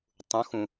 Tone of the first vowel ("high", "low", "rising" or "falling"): rising